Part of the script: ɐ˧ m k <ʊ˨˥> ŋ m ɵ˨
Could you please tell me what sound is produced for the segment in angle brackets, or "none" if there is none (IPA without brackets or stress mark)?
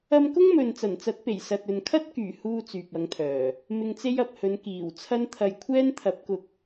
ʊ˥